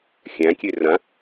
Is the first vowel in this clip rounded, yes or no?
no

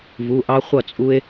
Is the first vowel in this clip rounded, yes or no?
yes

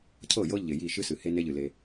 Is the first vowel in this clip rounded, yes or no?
no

